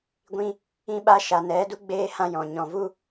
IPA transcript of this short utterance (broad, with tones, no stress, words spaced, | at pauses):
ɡʷĩ˧ | ĩ˧ɓa˧ʃa˨ nɛ˨˦du˦ ɡ͡beː˦hã˦jɔ̃˨ ɲɔ̃˨vu˦